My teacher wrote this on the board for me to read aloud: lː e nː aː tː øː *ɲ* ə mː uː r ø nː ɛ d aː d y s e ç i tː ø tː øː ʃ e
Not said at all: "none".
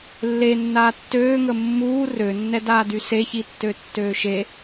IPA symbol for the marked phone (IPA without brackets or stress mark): ŋ